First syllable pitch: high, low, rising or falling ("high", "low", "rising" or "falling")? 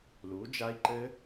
rising